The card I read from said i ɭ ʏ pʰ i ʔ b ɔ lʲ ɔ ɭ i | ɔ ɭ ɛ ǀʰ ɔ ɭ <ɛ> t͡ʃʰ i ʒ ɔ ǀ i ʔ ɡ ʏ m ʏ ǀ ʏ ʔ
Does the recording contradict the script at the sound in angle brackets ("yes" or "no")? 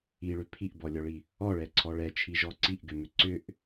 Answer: no